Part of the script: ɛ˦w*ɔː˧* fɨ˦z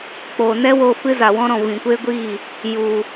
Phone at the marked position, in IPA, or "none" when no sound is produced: oː˧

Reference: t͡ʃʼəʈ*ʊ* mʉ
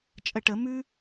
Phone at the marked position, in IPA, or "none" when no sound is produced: ə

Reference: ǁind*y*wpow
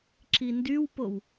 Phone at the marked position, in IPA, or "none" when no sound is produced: y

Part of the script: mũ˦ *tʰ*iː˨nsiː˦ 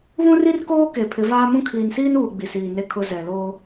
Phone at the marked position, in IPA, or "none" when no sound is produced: kʰ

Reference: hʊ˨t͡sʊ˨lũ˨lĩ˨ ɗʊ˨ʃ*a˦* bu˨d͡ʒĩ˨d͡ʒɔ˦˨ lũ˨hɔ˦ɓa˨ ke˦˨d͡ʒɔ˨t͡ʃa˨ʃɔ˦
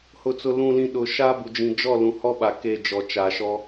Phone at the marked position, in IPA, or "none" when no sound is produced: a˦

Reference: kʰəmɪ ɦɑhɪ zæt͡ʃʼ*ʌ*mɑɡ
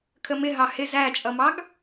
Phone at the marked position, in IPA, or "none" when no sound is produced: ʌ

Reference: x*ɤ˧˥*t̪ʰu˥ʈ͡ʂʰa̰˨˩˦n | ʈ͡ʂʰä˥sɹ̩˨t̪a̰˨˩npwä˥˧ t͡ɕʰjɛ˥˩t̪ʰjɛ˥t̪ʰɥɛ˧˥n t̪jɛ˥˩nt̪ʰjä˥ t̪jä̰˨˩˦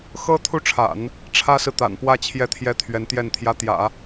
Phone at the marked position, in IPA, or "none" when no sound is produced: ɤ˥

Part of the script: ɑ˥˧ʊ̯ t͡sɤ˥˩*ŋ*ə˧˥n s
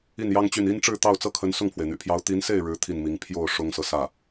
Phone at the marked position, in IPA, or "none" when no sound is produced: kʰ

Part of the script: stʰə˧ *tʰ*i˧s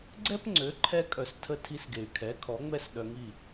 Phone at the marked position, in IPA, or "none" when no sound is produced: tʰ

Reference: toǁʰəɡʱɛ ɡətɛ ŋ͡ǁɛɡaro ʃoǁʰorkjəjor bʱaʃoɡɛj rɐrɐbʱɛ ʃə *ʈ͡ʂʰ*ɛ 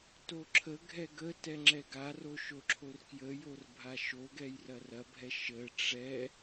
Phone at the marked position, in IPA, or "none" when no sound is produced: ʈ͡ʂ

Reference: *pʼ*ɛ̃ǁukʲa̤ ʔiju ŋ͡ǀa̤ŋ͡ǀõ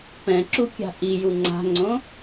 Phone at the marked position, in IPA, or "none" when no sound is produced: p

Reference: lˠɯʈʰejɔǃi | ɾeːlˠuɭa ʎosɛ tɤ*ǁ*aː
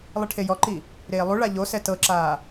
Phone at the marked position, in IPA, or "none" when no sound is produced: ǁ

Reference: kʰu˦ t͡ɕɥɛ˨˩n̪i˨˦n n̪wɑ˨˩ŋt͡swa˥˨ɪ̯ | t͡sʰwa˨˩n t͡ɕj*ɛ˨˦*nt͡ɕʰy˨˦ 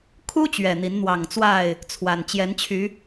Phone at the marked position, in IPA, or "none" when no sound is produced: ɛ˨˦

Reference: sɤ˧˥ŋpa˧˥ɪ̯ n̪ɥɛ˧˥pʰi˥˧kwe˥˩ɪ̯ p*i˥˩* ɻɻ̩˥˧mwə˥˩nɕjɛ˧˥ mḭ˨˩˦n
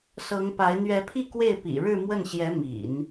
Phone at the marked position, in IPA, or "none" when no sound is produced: ḭ˨˩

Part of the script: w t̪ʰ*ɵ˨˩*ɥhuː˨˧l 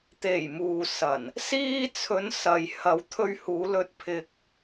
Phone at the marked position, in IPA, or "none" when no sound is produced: ɵ˧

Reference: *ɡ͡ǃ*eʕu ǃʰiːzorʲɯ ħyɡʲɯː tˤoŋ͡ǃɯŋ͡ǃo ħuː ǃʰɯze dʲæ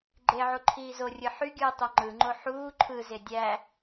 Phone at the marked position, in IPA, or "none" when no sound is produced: ɡ͡ǃ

